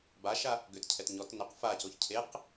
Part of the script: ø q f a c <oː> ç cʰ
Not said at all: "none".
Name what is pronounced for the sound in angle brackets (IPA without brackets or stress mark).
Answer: o